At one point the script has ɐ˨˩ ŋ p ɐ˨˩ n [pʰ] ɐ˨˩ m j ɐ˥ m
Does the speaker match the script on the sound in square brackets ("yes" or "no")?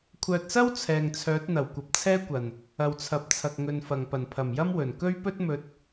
yes